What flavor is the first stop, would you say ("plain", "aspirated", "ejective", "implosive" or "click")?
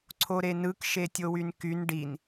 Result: click